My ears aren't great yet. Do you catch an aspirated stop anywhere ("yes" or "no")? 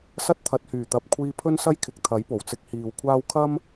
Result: yes